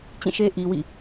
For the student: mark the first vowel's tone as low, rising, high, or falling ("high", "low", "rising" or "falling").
falling